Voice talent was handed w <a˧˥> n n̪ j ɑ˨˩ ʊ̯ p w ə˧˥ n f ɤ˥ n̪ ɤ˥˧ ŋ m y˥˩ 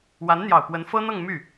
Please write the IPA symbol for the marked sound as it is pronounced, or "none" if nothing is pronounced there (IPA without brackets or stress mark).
a˧˥